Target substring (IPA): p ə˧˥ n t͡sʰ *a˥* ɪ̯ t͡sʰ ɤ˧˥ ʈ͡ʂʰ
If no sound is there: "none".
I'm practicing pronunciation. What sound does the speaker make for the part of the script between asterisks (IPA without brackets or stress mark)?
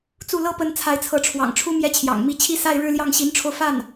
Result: a˧˥